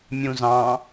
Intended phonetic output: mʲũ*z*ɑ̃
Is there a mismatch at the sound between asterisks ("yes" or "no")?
no